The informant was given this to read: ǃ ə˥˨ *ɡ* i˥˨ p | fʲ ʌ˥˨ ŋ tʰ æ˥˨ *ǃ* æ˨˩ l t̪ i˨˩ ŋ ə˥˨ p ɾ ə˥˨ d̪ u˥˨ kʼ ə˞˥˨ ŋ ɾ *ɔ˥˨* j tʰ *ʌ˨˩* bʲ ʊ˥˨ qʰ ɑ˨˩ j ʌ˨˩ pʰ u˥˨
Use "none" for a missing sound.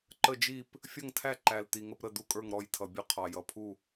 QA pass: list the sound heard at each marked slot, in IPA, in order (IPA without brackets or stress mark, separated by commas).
d͡ʒ, ǃ, ɔ˥˨, ʌ˨˩